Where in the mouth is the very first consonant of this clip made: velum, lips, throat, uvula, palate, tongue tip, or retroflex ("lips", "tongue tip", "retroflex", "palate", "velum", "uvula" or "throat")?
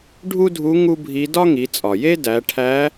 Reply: retroflex